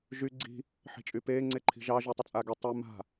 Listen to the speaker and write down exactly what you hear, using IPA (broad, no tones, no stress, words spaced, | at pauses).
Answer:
ʒy ɡ͡ǀi̤ | ħi̤t͡ʃʼypeː ŋ͡ǀeǃʰi̤ʒɑ ʒytˤət͡sʼaɡe tˤe ma̤